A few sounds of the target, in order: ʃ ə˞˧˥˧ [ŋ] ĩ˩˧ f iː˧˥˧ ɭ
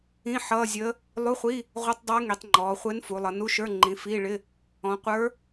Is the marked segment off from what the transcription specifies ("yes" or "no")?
yes